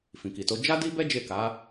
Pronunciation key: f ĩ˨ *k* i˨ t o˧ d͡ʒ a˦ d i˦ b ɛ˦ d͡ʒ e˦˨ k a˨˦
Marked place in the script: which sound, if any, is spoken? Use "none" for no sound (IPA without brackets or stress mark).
k